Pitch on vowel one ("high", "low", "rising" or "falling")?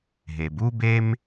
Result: low